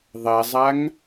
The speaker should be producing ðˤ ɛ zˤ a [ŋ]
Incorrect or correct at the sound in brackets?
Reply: correct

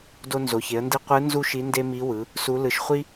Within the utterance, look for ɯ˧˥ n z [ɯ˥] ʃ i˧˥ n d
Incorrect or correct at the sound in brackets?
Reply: incorrect: u˥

